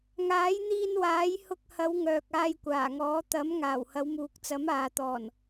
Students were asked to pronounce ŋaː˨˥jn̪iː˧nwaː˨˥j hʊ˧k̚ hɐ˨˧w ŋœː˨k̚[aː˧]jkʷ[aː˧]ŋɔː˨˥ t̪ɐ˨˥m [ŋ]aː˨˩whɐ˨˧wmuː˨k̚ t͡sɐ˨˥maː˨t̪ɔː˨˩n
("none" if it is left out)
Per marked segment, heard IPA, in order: aː˧, aː˨˩, ŋ

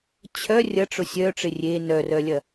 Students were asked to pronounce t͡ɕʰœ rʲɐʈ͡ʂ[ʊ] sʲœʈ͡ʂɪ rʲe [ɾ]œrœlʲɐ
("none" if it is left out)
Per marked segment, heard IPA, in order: ʊ, n

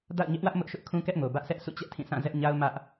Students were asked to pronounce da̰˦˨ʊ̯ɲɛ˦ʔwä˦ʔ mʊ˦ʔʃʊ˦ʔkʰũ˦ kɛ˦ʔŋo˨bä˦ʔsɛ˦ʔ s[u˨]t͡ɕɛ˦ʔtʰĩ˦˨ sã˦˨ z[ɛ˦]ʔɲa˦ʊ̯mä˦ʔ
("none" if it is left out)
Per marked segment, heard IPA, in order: ṵ˦˨, ɛ˦

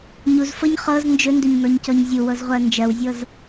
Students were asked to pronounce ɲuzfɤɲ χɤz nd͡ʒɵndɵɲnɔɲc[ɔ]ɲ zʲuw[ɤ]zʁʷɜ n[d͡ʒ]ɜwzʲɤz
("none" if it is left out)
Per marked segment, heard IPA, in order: ɔ, ɤ, d͡ʒ

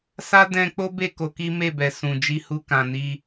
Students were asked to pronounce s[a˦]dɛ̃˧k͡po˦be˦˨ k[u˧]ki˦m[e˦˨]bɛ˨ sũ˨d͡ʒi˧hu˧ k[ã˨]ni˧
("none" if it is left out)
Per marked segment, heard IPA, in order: a˦, o˧, e˦˨, ã˨

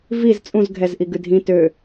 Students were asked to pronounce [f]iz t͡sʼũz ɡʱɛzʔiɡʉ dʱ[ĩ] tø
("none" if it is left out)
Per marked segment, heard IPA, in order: v, ĩ

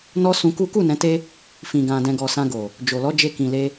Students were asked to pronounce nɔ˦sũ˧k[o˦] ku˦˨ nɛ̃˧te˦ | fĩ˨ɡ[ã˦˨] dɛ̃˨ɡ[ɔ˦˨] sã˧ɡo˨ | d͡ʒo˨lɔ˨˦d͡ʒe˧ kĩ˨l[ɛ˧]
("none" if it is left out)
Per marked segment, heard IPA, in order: u˦, ã˨, ɔ˨, e˧

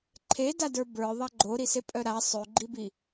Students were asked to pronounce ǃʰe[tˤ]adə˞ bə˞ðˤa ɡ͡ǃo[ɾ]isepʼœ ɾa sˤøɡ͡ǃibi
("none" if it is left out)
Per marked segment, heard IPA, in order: d, ɾ

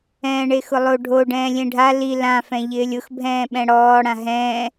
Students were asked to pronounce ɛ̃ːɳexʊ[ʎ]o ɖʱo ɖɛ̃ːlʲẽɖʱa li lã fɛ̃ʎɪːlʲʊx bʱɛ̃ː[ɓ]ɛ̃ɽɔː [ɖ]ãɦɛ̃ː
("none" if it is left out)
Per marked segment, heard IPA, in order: lˠ, ɓ, ɽ

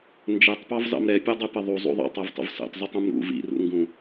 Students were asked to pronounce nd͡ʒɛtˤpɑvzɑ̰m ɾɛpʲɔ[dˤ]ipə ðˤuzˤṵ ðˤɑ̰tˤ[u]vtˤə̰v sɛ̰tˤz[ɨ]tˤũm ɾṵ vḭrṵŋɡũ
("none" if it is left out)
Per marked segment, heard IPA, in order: dˤ, ɯ, ɨ

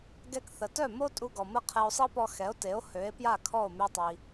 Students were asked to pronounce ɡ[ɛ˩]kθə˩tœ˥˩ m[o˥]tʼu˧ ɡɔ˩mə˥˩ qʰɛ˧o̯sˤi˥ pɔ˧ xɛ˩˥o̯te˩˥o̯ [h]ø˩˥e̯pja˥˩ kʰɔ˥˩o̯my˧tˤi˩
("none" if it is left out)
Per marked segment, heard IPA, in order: ɛ˧, o˥, h

